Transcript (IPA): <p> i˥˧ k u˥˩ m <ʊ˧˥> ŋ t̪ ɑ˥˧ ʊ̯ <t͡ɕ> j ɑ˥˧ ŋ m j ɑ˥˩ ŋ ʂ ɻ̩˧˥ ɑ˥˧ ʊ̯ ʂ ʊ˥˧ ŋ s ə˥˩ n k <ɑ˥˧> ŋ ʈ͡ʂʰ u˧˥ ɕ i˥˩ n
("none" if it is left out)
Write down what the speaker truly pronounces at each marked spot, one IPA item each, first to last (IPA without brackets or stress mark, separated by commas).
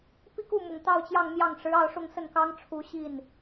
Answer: p, ʊ˨˩, t͡ɕ, ɑ˥